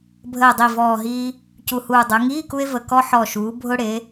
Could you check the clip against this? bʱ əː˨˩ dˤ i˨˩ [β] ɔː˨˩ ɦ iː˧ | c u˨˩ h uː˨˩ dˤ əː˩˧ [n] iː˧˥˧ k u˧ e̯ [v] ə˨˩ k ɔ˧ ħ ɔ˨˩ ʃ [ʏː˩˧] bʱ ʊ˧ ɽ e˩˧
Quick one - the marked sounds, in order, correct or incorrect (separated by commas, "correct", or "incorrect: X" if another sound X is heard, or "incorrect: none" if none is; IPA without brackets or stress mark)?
incorrect: v, incorrect: ŋ, correct, incorrect: uː˩˧